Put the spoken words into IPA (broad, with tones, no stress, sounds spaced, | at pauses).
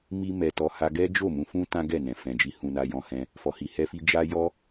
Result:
m i˦ m ɛ˧ t ɔ˧ h a˧ ɡ ɛ˦ d͡ʒ o˦˨ m ũ˧ f ũ˦ t ã˦ ɡ ɛ˦˨ n ɛ̃˨ f ɛ̃˨ d͡ʒ i˧ h ũ˧ n a˧ j ɔ̃˧ h ɛ̃˧ | f ɔ˧ h i˧ h ɛ˦ f i˦ d͡ʒ a˧ j ɔ˧